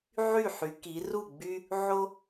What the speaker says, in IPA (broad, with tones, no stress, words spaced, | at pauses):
ʕy˥˩ħy˩˧ ki˩˧ru˥˩ɡ͡by˦ | ʕo˦